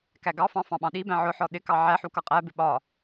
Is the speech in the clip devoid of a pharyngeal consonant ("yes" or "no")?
no